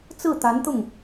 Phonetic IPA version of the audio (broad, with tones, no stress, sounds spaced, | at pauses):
t͡s ɹ̩˥˩ t̪ a˧˥ n t̪ ʊ˥˩ ŋ